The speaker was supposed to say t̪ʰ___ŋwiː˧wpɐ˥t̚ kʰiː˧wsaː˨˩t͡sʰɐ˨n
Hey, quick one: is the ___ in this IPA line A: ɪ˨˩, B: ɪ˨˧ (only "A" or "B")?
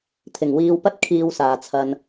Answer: A